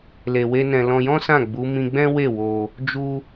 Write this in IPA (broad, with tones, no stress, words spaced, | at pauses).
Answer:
le˧we˦nɛ̃˧ lɔ̃˧jɔ̃˦sã˦˨ ɡ͡bu˨˦mĩ˧ɡ͡bɛ̃˦ we˦˨wo˧ | d͡ʒu˦